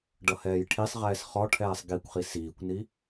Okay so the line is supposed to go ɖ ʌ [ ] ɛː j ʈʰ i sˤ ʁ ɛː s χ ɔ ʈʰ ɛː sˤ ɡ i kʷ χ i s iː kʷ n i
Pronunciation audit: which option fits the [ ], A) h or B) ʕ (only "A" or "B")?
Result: A